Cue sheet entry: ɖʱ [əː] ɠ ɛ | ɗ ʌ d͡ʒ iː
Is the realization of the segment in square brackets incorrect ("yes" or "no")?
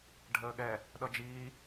no